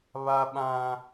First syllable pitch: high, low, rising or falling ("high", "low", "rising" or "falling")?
high